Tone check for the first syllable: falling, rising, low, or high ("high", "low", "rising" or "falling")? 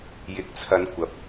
rising